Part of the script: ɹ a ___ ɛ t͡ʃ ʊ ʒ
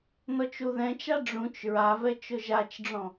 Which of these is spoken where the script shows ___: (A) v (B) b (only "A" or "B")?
A